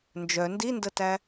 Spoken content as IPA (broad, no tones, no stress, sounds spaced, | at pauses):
n d͡ʒ œ n d i n d ə t æ